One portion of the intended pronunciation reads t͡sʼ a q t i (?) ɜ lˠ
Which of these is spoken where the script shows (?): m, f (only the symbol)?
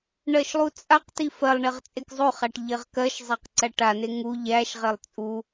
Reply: f